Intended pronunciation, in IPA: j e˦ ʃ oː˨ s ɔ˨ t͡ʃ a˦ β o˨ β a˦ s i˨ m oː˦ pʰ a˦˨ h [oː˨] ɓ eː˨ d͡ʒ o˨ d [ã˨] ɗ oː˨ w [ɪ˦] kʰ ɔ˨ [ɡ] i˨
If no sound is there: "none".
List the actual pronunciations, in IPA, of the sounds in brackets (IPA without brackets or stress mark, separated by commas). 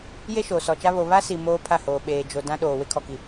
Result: oː˨, ã˦, ɪ˦, k